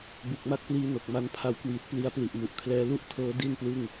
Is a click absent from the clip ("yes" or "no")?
yes